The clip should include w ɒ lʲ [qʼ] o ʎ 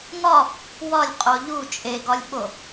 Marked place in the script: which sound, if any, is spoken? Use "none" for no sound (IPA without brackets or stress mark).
qʼ